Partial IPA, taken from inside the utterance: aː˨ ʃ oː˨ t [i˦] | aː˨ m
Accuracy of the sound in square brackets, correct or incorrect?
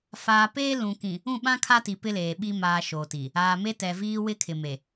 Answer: incorrect